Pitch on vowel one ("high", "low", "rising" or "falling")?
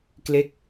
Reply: falling